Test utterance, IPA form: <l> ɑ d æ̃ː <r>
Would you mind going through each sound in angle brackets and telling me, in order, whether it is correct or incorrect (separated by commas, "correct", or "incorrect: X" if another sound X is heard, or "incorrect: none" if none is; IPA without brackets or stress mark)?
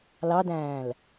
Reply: correct, incorrect: l